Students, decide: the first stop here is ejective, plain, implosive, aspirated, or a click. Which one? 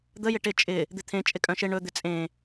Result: plain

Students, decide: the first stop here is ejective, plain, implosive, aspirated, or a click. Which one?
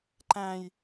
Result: click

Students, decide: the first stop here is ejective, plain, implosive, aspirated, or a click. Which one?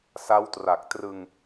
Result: plain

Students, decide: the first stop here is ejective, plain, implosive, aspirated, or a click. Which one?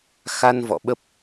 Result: implosive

